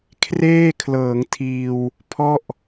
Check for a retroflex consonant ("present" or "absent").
absent